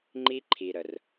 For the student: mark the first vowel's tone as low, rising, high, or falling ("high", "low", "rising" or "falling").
high